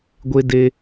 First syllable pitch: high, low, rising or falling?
high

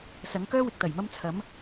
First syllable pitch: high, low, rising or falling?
rising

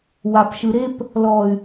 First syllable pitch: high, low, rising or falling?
low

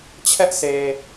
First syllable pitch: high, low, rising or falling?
high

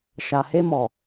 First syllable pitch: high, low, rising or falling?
low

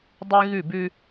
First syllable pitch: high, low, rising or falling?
high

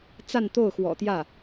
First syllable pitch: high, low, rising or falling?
falling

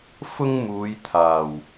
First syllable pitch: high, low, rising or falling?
high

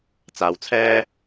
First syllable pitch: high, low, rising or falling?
low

